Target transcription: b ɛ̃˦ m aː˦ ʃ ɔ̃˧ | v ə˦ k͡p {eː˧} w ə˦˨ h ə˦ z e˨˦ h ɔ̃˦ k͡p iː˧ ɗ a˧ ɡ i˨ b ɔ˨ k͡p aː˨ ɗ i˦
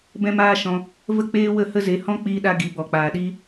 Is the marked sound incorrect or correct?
incorrect